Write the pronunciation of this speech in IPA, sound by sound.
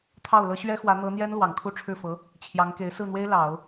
t̪ʰ ɑ˥˩ ʊ̯ l ɤ˥ ɕ ɥ ɛ˥ x w ä˧˥ n̪ ɤ˧˥ n̪ j ɛ˥ n l w ɑ˨˩ ŋ kʰ u˥ ʈ͡ʂʰ ɻ̩˥˩ f ɤ˧˥ | t͡ɕʰ j ɑ˧˥ ŋ k e˧˥ ɪ̯ s ɹ̩˥˩ n̪ w e˥ ɪ̯ l ɑ˨˩˦ ʊ̯

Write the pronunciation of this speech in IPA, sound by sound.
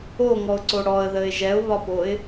o ŋ ɔ ʊ̯ ǀ o ɽ ɔ ə̯ ð ə ɪ̯ ʒ ɛ ʊ̯ β ɒ p o ɪ̯

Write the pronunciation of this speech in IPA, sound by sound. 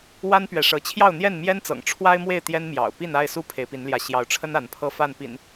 w a˦ n p ɥ ɛ˨ ʂ ɤ˨˦ t͡ɕʰ j ɑ˥˨ ʊ̯ n̪ j ɛ˥˨ n m j ɛ˦ n t͡s ɤ̰˨˩ ŋ ʈ͡ʂʰ w a˦ ɪ̯ m w e˥˨ ɪ̯ t̪ j ɛ˦ n m j ɑ̰˨˩ ʊ̯ p i˥˨ n a˥˨ ɪ̯ s u˦ pʰ e˨˦ ɪ̯ p i˨˦ n l j ä˨˦ ɕ j ɑ˨˦ ʊ̯ ʈ͡ʂʰ ə˦ n a˨˦ n pʰ ɤ˥˨ f a˥˨ n p ḭ˨˩ n

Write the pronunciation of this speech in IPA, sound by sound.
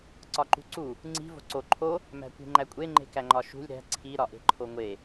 ǀ ɒ ǃ ṳ ǀ u | ŋ͡ǀ i̤ v o̤ ǀ o ǃʰ o | m æ̤ kʷ i̤ ŋ͡ǃ æ kʷʼ e ŋ͡ǃ e̤ k æ ŋ͡ǃ ɒ ʃ ṳ lʲ ɾ æ̤ ǀʰ i ɾ ɒ ʔ e̤ ǃʰ o ŋʷ e

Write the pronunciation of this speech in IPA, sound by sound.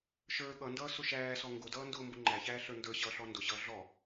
ʃ ə˞ ɠ ʌ n d ʌː s ʊ ʃ æː s ɔ ŋ ɡ ʊ d ʌː n d ʊː m b ʊ ŋ͡ǃ æ ç æː ɬ ə˞ n d ə˞ ɕ ʌː ɬ ɔ n d ʊ ɕ ʌː ɮ ɔ

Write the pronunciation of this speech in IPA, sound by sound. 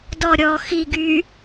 d ɔ ɾʲ ɔ x i ɡ y

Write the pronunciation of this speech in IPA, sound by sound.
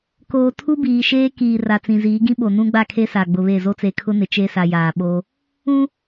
k oː˨ tʰ u˦ b iː˨ ʃ eː˦ k iː˨ r a˨ t͡s ĩ˨ z iː˨˦ ɡ ĩ˦ ɓ o˨ n ũ˦ ɡ͡b a˦˨ kʰ e˦ s a˨ ɡ͡b ʊ˨ β e˦˨ z o˦ t͡s e˨ kʰ ʊ˦ n ɪ˨ t͡ʃ e˦ s a˨ j aː˨ ɓ o˦ | ũ˦

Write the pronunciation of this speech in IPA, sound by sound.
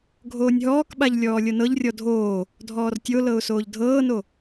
ɡʱ oː nʲ ɦ ɔː k ɓ a ʎ lʲ ɔː lʲ ɤ n ɤ ʎ rʲ ɔ dʱ oː | dʱ ɔː r tʲ o l ɤ ʊ̯ s oː ʎ dʱ ɤː n o

